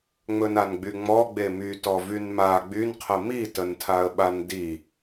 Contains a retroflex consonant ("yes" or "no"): no